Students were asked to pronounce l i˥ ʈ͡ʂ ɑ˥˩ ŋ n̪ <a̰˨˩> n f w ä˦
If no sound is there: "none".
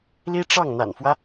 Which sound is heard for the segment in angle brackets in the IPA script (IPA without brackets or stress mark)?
a̰˨˩